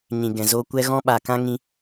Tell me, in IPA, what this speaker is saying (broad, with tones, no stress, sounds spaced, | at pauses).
ɲ ĩ˨ ɡ ɛ̃˨ z o˧ kʷ ɛ˦ ɣ ɔ̃˦ ɓ a˨ k ã˦ ŋ ĩ˧